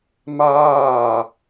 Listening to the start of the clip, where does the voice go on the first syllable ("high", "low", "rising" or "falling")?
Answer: falling